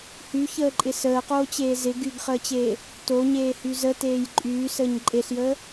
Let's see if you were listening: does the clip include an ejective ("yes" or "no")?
yes